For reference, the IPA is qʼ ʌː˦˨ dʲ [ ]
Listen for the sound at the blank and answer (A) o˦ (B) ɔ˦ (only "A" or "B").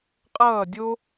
A